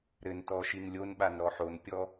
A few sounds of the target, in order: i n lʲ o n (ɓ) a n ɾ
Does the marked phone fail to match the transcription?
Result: no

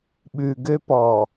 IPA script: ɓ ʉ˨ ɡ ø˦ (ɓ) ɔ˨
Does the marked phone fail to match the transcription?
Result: yes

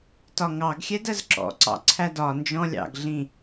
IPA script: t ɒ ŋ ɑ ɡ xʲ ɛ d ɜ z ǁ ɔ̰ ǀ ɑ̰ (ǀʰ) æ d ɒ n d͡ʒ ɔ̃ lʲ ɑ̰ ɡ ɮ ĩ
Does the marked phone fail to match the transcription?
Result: no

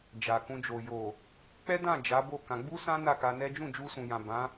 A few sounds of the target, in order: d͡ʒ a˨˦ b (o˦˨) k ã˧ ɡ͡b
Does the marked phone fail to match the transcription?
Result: no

